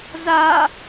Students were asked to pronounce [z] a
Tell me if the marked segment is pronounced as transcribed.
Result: yes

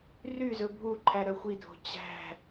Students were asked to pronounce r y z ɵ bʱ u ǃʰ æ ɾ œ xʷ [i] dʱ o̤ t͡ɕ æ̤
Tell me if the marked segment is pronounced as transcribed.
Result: yes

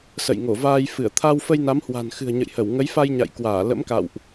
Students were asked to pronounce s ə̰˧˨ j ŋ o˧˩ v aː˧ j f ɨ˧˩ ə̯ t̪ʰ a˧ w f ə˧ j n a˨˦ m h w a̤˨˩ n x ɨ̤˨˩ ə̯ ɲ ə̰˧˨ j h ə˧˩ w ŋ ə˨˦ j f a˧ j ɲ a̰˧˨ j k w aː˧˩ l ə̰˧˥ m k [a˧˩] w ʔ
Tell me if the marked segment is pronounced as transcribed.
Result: no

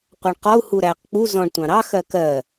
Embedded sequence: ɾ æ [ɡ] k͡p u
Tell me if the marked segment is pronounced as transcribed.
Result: no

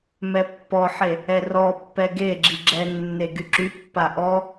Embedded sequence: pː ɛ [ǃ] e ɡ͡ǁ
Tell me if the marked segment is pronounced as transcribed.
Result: no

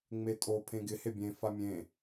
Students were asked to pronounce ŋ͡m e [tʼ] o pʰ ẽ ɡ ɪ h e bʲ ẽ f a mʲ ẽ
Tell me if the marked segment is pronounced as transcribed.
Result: yes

